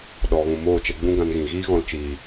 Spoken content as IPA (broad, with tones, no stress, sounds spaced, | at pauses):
ɗ ɔ˧ ɣ ũ˧ m oː˦˨ t͡ʃ ɛ˧ ɡ͡b ũ˦ ɡ ã˧ n ɣ ĩ˨ ɣ iː˦ ɣ ɔ̃˧ l t͡ʃ iː˨